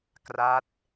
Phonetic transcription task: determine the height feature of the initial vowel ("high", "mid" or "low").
low